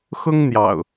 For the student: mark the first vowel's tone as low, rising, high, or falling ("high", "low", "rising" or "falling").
high